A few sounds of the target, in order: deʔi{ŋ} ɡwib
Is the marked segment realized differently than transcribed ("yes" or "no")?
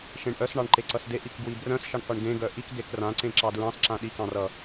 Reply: yes